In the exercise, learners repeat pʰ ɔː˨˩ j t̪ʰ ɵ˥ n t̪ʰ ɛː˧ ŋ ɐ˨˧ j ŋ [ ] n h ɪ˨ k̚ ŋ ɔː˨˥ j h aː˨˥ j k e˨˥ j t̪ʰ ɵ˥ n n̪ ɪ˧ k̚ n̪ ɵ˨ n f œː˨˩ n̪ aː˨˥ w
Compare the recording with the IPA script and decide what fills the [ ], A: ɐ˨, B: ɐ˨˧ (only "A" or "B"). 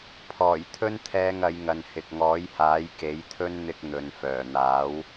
A